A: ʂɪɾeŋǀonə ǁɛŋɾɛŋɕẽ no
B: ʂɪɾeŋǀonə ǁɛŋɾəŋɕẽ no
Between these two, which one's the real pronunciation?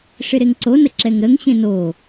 B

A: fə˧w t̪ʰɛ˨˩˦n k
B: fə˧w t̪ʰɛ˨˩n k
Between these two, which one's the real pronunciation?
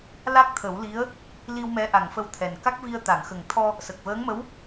B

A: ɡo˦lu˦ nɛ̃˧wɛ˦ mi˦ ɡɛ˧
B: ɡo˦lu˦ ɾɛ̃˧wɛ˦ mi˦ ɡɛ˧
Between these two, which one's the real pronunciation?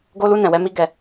A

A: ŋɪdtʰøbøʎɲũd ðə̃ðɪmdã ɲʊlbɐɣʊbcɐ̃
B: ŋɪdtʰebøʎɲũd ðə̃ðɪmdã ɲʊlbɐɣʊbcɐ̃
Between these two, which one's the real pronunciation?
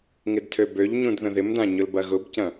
A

